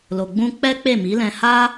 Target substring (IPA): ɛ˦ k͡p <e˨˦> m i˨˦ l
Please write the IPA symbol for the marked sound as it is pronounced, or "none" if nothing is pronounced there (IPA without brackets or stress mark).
e˦˨